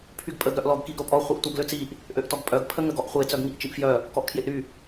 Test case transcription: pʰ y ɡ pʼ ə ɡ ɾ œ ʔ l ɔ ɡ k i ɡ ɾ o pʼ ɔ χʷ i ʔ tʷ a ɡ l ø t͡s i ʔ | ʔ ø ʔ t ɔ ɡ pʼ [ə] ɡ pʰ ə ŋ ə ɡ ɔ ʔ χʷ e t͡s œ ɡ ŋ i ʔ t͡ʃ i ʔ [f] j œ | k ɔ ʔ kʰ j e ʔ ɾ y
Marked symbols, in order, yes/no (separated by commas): no, yes